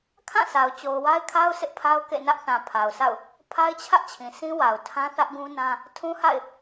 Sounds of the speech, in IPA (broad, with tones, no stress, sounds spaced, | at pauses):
kʰ ã˦˨ sʰ a˨ ʊ̯ t͡ɕ o˨ ʊ̯ w a˦ ɪ̯ kʰ a˦ ʊ̯ s ɪ˦ ʔ pʰ a˦ ʊ̯ k ḛ˦˨ n ä˦ ʔ θ ã˨ pʰ a˨ ʊ̯ sʰ a̰˦˨ ʊ̯ | pʰ a˦ ɪ̯ t͡ɕʰ ä˦ ʔ t͡ɕʰ ĩ˨ sʰ ĩ˦ w a˨ ʊ̯ tʰ ã˦ θ ä˦ ʔ ɡ ũ˦ n ã˦ | tʰ ũ˦ h a̰˦˨ ɪ̯